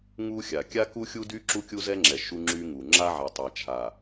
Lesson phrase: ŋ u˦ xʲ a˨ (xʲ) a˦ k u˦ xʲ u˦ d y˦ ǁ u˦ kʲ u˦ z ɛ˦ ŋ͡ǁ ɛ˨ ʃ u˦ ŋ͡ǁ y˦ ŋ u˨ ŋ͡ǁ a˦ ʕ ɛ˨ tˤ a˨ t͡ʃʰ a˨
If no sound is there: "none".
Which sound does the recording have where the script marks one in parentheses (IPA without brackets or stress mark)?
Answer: kʲ